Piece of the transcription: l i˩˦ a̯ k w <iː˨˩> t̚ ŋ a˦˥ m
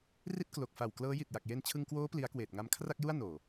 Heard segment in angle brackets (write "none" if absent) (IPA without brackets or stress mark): eː˨˩